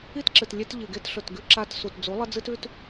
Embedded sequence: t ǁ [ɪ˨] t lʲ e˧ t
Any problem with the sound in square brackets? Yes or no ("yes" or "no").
yes